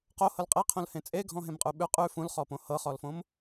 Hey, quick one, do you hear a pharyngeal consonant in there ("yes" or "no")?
no